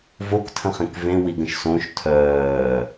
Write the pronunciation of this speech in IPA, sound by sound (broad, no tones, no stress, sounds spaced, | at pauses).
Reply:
v o k tʰ ə̃ χ ẽ k v ẽ w i ɡ ə̃ ʃ s õ ʃ tʰ œː